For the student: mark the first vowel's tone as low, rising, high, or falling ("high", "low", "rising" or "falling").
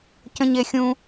high